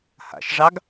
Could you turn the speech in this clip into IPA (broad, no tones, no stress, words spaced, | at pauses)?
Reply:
ha̰ʃʐɑɡ